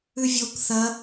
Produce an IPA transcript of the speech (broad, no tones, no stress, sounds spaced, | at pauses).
ʉ vʲ o k θ ɐ